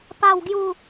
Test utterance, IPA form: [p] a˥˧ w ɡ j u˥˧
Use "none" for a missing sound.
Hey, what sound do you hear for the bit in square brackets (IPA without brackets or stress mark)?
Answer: p